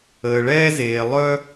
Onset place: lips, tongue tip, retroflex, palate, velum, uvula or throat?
retroflex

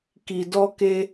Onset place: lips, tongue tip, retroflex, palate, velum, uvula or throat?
velum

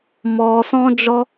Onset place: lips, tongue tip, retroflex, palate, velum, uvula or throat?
lips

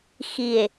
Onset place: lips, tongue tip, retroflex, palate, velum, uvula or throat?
velum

